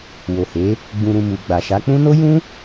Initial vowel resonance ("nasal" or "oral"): oral